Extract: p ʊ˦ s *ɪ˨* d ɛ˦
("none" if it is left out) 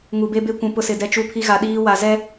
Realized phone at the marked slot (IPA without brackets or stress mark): ɪ˨